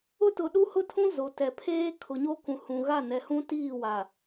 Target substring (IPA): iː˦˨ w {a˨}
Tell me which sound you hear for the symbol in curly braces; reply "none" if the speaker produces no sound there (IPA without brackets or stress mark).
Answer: a˨